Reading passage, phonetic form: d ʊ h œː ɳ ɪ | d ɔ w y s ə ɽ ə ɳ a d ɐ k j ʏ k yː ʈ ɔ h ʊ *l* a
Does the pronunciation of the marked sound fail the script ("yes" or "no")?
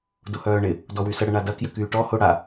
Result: yes